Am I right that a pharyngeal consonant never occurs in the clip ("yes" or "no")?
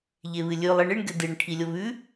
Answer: yes